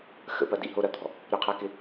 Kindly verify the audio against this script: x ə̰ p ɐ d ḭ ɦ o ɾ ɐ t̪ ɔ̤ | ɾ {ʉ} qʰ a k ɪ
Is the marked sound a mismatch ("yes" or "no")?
yes